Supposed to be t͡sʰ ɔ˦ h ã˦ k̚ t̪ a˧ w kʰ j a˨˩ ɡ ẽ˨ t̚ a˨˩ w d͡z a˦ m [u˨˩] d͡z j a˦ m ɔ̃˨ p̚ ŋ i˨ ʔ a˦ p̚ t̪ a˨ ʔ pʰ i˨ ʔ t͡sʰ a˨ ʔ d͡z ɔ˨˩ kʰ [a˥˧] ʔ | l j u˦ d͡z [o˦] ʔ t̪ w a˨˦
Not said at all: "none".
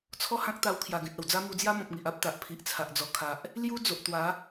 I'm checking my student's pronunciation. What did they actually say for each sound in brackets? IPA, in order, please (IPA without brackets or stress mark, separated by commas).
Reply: u˧, a˨, o˨